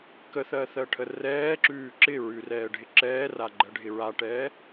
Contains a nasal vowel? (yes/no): no